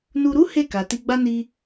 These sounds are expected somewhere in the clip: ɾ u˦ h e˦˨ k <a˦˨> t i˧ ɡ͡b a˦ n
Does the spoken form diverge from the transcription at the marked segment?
yes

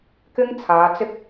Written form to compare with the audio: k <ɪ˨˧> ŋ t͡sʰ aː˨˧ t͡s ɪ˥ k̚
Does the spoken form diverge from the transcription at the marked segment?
yes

